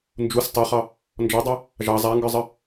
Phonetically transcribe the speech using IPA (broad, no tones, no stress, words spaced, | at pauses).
nd͡ʒus tˤɑχɑ | nd͡ʒɔdˤu | ʒɑ zˤaŋɡə˞zˤə